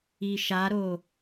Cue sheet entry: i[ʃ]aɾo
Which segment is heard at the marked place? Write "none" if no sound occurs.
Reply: ʃ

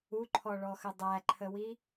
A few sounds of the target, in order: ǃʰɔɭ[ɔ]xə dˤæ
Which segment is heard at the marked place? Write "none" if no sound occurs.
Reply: ɔ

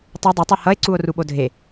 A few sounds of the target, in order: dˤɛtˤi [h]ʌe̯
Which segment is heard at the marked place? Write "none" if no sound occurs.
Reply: h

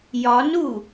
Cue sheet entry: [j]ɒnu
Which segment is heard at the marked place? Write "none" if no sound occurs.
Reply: j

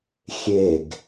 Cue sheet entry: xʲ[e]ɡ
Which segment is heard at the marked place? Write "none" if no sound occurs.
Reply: e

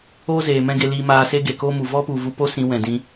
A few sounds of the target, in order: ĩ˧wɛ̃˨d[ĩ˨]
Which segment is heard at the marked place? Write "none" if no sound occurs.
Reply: ĩ˧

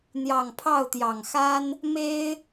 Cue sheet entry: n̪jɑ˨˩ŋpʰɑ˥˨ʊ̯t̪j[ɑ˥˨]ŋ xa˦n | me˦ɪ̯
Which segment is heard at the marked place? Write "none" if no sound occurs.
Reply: ɑ˨˩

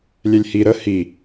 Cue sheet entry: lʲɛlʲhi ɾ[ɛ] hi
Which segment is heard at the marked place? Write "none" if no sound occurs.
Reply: ə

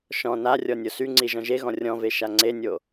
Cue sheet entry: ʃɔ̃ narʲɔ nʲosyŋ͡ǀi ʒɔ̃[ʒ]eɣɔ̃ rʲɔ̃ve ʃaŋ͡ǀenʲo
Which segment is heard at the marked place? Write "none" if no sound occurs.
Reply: ʒ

